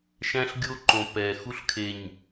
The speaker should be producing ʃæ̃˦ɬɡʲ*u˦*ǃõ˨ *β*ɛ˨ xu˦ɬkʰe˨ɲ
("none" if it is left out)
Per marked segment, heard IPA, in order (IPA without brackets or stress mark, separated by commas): o˦, p